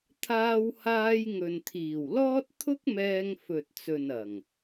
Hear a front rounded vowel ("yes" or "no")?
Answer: no